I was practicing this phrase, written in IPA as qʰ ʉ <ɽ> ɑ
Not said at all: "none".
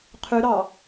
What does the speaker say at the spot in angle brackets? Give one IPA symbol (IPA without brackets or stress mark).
ɾ